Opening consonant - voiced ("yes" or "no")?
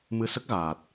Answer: yes